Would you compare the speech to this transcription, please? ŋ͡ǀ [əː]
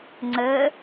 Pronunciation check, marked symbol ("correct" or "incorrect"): correct